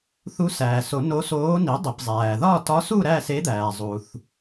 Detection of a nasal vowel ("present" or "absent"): absent